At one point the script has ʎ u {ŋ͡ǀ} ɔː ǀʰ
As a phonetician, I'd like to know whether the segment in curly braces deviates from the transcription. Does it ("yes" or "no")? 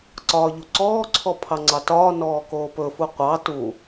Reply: yes